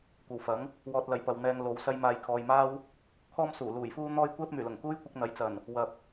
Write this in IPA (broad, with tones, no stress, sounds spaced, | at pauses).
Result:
kʷ ɐ˨ w f ɐ˨˥ ŋ | w ɔː˧ t̚ l ɐ˨ j p ɐ˨ w n̪ ɛː˧ ŋ l o˨˧ w s ɐ˧ j m aː˨ j kʰ ɔː˨ j m aː˥ w | kʰ ɔː˥ m s uː˨˩ l uː˨˩ j f uː˥ n̪ ɔː˥ j kʷ ɛː˥ p̚ m yː˨˩ l ʊ˨˩ ŋ k uː˥ j kʷ ɪ˧ k̚ n̪ ɐ˨˥ j t͡s ɐ˨˩ n | w ɐ˨ p̚